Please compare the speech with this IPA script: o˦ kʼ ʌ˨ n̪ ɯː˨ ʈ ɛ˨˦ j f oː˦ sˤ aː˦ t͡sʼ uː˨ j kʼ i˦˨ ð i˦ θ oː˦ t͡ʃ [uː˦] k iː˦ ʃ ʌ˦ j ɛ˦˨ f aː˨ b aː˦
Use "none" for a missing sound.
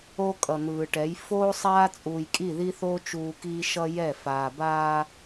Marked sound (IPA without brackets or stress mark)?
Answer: uː˦